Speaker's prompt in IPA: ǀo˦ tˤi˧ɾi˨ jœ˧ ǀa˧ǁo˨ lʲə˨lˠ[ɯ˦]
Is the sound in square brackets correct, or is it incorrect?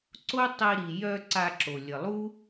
incorrect